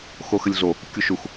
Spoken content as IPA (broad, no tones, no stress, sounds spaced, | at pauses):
x o x ɘ lʲ ɮ o | kʲ u ʃ u x